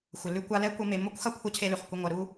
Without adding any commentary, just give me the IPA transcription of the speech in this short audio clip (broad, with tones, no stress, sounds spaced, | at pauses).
xʷ ə˨ l ʉ˥ kʷ a˥ l ɛ˥ kʷ ɐ˦ m e˨ m o˥ kʷ x ɐ˥ kʷʰ ɐ˥ cʰ e˦ l ʉ˩ χ kʷ ə˦ ŋʷ ɐ˨ ɾ u˥